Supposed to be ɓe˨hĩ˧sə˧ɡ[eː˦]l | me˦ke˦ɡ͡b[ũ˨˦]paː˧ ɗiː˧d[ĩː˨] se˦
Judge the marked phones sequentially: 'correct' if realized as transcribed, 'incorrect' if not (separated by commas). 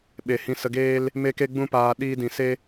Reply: correct, incorrect, incorrect